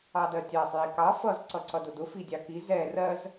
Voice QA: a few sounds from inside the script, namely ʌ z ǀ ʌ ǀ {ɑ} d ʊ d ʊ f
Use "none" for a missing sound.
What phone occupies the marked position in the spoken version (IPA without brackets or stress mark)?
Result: ʌ